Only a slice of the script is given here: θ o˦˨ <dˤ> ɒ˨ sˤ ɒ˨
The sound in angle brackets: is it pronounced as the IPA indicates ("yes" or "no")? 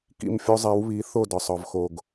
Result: no